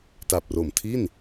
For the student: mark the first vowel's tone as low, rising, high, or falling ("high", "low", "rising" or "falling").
low